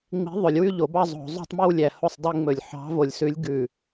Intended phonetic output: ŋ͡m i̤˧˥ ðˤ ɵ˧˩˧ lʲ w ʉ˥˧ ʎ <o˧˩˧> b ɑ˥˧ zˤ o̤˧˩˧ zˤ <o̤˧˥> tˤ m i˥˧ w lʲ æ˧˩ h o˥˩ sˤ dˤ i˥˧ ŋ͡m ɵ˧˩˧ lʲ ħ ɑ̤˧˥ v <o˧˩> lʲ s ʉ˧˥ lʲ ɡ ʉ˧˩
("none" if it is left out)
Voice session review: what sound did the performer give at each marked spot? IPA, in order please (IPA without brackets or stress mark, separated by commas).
o˧˩˧, o̤˥˧, o˧˩